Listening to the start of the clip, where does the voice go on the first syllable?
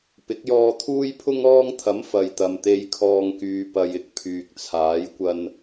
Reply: rising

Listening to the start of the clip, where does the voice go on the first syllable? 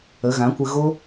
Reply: rising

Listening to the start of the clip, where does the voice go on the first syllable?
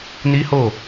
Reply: high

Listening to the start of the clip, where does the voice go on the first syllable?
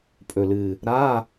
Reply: low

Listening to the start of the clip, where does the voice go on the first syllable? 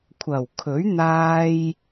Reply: low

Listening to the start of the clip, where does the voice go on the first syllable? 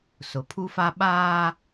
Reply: low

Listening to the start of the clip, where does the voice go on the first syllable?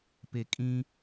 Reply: low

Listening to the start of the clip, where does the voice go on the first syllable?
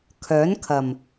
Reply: rising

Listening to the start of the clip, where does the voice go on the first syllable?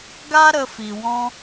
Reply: high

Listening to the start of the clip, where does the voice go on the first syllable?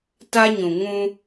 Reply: high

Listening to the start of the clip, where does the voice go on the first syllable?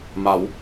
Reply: rising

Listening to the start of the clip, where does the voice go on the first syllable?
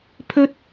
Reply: high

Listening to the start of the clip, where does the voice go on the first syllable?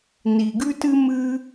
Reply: low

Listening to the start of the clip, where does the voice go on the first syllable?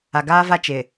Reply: low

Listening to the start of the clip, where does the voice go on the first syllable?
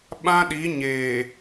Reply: high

